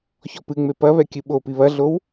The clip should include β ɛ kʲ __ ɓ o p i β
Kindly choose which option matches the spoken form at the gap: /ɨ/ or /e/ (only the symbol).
ɨ